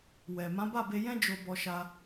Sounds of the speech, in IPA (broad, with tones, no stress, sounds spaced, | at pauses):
w ɛ˨ m ã˨˦ b a˦˨ b e˧ j ɛ̃˦ d͡ʒ o˧ b ɔ˧ ʃ a˧